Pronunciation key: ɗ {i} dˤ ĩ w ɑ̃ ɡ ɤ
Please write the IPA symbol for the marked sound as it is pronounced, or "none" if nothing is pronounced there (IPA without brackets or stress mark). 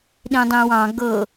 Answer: ĩ